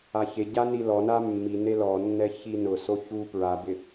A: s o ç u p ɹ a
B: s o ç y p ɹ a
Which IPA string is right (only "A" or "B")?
A